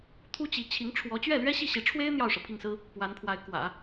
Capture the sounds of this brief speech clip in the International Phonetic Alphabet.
t̪ʰ u˥ t͡ɕ i˧˥ t͡ɕʰ i˧˥ ŋ ʈ͡ʂʰ w ɔ˧˥ t͡ɕ ɥ ɛ˥˩ l ɥ ɛ˥ ɕ i˥˩ ɕ i˧˥ ʈ͡ʂʰ w e˥ ɪ̯ n̪ j ɑ˥˩ ʊ̯ ʂ ɤ˩ pʰ i˥˩ ŋ s ɹ̩˥ | p w a˧˥ n pʰ w a˧˥ ɪ̯ k w ä̰˨˩˦

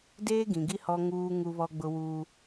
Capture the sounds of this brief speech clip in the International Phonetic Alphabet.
d eː˦ ɡ ĩ˨ ɡ i˦ h ɔ˦ ŋ uː˦ ŋ u˦ β ɔ˦ ɡ͡b ʊ˦ w uː˦

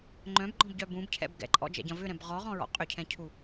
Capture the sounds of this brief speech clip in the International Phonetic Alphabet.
ŋ͡ǃ œ̃ b ɡ͡ǃ ɔ̃ b ɟ œ b ũ b cʰ ɛ̰ b ɡ ɛ̰ ǃʼ ɔ̰ d͡ʒ ɛ̰ ɟ ɐ̃ v ʏ ɾ ɛ̃ b ʁ ɔ ʁ ɔ̃ ɹ ɔ̰ qʼ ʏ cʰ ɛ̃ cʰ u

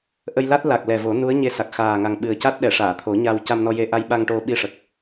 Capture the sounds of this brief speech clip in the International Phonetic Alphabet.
ʔ ə˧ j l a˦˥ t̚ l a˨˩ k̚ l ɛ˨˩ v o˨˩˦ n u˧˥ ə̯ ɲ e˧ s a˨˩ k̚ x aː˨˩ ŋ a˨˩ ŋ ɓ ɨ˨˩ ə̯ c a˦˥ t̚ ɗ ɛ˨˩˨ ʂ aː˨˩˨ t̪ʰ o˨˩˦ ɲ a˧ w c a˧ m n ɔ˧ j e˧ ʔ a˧ j ɓ a˧ ŋ ʈ o˧ ɓ i˧ ʂ ə˨˩ k̚

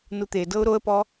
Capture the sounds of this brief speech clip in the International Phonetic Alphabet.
n u t̪ e d ɤ ʊ̯ ɾ o ə̯ p ɔ

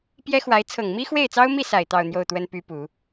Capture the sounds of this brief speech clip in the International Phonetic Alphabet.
p j ɛ˥ x w a˧˥ ɪ̯ t͡sʰ ɤ˨˩ ŋ m i˥ x w e˥˩ ɪ̯ t͡s ɑ˥ ʊ̯ m i˥˩ s a˨˩ ɪ̯ t̪ ɑ˥˧ ʊ̯ n̪ j o˥˩ ʊ̯ t̪ w ə˥ n p y˥ p u˨˩˦

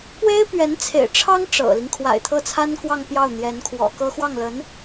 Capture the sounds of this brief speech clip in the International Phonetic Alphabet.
p w e˥ ɪ̯ p ɥ ɛ˧˥ n t͡sʰ ḛ˨˩ ɪ̯ ʈ͡ʂʰ ɑ˥ ŋ ʈ͡ʂ ɤ̰˨˩ l i˦ ŋ kʰ w a̰˨˩ ɪ̯ t̪ʰ ɤ˥˩ t͡sʰ a˥ n k w ɑ˥˧ ŋ p j ɑ˥˩ ʊ̯ n̪ j ɛ˧˥ n kʰ w ɔ̰˨˩ k ɤ˥ x w ɑ˥˩ ŋ l ə˧˥ n

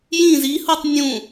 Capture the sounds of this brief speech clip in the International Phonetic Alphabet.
j ĩ z i h u tˤ nʲ ũ

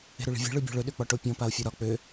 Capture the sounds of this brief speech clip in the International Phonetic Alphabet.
e̤ ɾ ø ɭ i̤ vʲ e̤ ɭ ø bʲ ɔ̤ ɭ ɵ ɗ ø k͡p ɒ ʈ o pʲ ɔ̃ p a o̯ fʲ ɒ ɾ ɒ k͡p ø

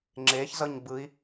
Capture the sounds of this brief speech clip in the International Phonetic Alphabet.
ŋ͡ǁ e ç z ʌ ɲ b ɯ i̯

